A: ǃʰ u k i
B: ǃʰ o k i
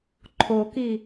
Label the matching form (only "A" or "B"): B